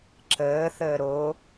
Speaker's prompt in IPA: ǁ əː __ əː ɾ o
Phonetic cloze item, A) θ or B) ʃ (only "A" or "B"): A